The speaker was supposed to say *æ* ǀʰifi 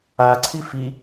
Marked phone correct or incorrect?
incorrect: a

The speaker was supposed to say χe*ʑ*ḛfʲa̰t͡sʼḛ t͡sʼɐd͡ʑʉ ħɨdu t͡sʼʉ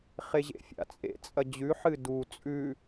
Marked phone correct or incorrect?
correct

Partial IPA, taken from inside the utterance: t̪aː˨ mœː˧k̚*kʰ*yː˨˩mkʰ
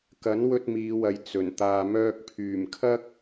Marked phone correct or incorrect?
incorrect: pʰ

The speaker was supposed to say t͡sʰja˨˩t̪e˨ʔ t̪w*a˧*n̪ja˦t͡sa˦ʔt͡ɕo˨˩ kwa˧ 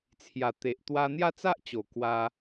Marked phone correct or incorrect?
correct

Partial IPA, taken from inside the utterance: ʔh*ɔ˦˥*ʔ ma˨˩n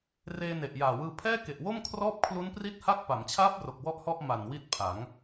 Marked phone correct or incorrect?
incorrect: ɔ˥˩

